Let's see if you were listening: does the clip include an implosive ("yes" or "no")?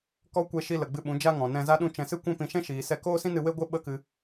yes